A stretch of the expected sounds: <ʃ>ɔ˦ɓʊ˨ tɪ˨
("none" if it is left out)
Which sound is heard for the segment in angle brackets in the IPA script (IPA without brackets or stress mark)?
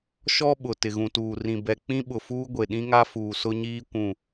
ʃ